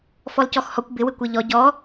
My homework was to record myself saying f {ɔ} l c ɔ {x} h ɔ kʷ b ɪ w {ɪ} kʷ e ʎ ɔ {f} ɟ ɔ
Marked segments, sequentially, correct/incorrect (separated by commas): correct, correct, correct, incorrect